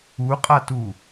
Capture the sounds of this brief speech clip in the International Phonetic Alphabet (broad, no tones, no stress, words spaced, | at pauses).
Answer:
uqʼatu